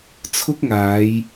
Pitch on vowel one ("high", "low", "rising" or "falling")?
high